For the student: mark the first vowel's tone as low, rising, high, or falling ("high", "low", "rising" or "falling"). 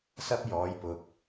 high